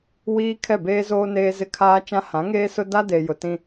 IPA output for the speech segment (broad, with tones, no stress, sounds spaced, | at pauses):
w iː˦ kʰ ɛ˦˨ b eː˦ z oː˦ n eː˦ z ɪ˦ kʰ aː˦ t͡ʃ ã˦ h ã˨˦ ŋ eː˦ s ʊ˦ d a˦ d e˨ j ʊ˨ t ĩ˦